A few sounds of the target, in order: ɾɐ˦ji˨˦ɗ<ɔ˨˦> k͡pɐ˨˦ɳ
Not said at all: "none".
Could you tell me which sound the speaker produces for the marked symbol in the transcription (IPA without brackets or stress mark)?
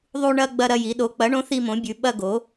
o˨˦